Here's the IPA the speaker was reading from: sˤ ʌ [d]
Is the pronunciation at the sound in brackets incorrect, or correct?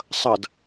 correct